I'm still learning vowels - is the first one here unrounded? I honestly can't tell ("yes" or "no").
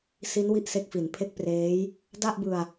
yes